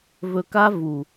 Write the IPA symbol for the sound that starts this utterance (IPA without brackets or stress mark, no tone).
v